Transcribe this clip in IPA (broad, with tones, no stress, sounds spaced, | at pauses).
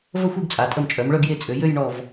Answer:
v ə˥˧ xʷ i˥˧ ɡ t͡sʼ a˩˧ tʼ ə˧˩ m t͡ʃʼ œ˩˧ m ɭ œ˥˧ ɡ j e˧ t͡sʼ ø˩˧ j ø˥˧ j ɳ ɔ˧˩ v